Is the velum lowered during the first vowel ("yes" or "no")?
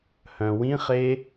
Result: yes